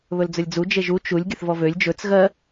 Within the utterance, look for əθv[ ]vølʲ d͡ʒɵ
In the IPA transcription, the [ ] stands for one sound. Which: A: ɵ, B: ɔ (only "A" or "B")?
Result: B